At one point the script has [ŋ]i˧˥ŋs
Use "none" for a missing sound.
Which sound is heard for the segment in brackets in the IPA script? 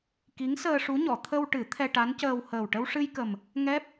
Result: k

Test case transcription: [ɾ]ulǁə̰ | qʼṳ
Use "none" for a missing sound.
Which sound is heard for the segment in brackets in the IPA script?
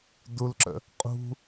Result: d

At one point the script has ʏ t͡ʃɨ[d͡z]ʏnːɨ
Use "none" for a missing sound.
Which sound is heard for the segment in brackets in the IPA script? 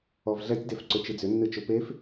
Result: d͡z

